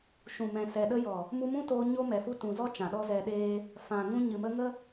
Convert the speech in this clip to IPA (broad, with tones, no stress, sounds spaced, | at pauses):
ʃ ũ˨ m ɛ̃˨ s ɛ˨ ɗ ə˦ j ɔ˨ | m u˧ m ũ˦ t oː˧ ɲ o˦ m ɛ˨ f u˦ t ũ˨ z ɔ˦ t͡ʃ ã˨ ɗ ɔ˦ z ɛ˧ ɗ eː˦ | f ã˨ ŋ ũ˧ ɲ ɨ˨ m ə˧ ŋ ə˦